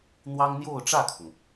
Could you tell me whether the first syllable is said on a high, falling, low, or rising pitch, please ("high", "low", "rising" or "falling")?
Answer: high